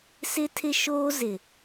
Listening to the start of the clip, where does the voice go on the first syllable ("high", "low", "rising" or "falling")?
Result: high